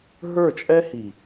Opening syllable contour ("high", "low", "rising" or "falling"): falling